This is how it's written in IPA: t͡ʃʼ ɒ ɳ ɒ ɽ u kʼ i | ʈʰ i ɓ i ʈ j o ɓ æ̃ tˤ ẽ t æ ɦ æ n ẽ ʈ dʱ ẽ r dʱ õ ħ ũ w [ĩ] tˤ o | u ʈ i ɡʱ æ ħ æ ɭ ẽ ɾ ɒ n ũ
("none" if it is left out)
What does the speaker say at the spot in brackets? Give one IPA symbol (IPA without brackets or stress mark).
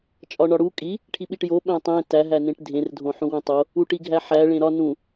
ĩ